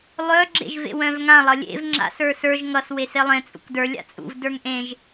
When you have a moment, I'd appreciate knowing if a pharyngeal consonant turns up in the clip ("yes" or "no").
no